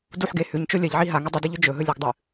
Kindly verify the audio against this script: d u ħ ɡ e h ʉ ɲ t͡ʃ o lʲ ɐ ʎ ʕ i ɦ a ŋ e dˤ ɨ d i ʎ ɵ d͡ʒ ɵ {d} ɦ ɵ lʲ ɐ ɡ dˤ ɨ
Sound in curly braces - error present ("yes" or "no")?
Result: yes